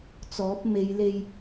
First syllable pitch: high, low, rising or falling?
rising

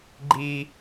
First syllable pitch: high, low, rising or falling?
high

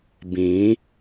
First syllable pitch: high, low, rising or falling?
rising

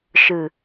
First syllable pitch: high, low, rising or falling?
low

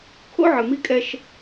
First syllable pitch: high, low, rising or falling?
high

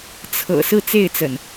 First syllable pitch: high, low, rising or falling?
low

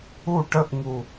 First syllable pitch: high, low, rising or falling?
falling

